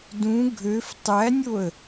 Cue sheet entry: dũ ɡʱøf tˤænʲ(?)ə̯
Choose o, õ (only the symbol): o